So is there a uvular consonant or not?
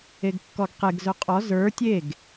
yes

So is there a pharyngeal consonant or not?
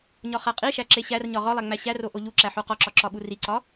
yes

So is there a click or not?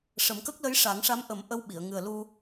no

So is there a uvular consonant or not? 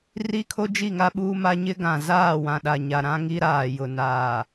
no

